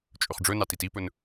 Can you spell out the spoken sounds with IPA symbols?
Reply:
t͡ʃʼ ɵ χ ɖ͡ʐ ɵ n ɑ t i t i p ɵ n

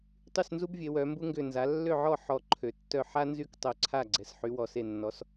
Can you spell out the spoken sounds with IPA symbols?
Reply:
tˤ y˥˩ s n z u˥ b vʲ e˩˧ w œ˩˧ m b u˥ ŋ ɡ ʏ˧˩ n z a˩˥ lː ø˥˩ ʕ ɔ˥˩ ħ ɔ˧˩ ǃʰ ø˩˧ tː œ˥˩ ħ a˥ n z y˥ k tˤ œ˧˩ ǀʰ a˥˩ ɡ͡ǀ ɛ˩˧ s ħ y˩˥ w ɔ˩˧ s e˧˩ nː ɔ˩˥ s

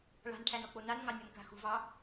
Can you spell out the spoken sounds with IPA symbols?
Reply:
ɭ a̤ n ʈʰ æ n ɔ k͡p o n a n ŋ ɑ nʲ ɔ n k a̤ x ṳ v ɑ

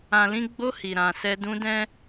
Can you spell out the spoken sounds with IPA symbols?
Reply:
ã˨ l ĩ˨˦ ɡ͡b o˧ h i˨ ɾ ã˨ s ɛ˧ d ũ˧ d ɛ̃˦

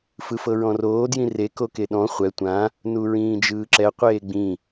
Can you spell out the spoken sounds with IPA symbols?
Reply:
f ɯ f ɤ ɹ ɔ̃ r oː d j ĩ r e k o k e ɗ ɔ̃ χʷ ɛ tʷ ã | n u ɹ ĩː d͡ʒ ɯː ǁ ɛ qʷ eː ɡ͡b ĩ

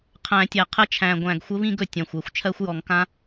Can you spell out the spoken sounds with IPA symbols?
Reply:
qʰ æ̃˨˩˦ tʲ æ˨˩ qʰ ə˦˥ t͡ʃʰ æ̃˨˩ ɡʷ æ̃˨˩ ɡ xʷ ə˦˥ β ĩ˥˧ ɡ ɵ˨˩ tʲ ã˨˩ xʷ ɛ˨˩ xʷ t͡ʃʰ ɜ˦˥ xʷ j ɔ˨˩˦ ŋ k ã˦˥

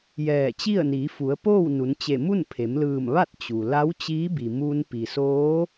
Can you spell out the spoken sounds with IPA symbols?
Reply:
j ɛː˧˩ t͡ɕ i˥˨ ə̯ n iː˩˧ f u˩˧ ə̯ p oː˥˨ w n u˩˧ n t͡ɕ e˧˩ m u˥˨ n pʰ e˩˧ m l ɯː˧˩ m ʋ a˥˨ t̚ t͡ɕ u˩ l a˧˥ w t͡ɕ iː˧˥ b i˩ m u˧ n p i˩ s oː˧˥

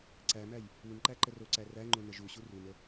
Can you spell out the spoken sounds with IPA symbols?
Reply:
ǀ æ m æ j | u n ǃ æ ǃ ə r o ǀ æ r æ ŋ͡ǃ o n ə ʒ u ɕ u r u n ə

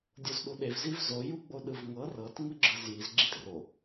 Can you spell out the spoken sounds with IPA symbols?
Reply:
dʲ o z ɗ u ɗ e v z i v z o j u ɡ͡b o ɗ ɯ v ŋ ɤ r ɤ t ŋ ɯ ɡ͡ǁ ɯ z j i z ɡ͡ǁ i t r o

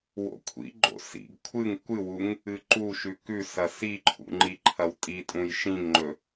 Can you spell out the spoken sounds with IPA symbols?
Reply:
w o̰ kʷʰ ḭ ɡ͡ǃ o̰ s ḭ ɡ kʷʰ ɨ ŋ kʷ ɨ w u ŋ | ɨ ǃ u ʃ ʉ k ʉ s ɐ s i ǃʰ ṵ ŋ͡ǃ i ǃʰ ɐ w tʼ i tʼ ũ j ʃ ĩ ŋ ŋ͡ǃ ɵ

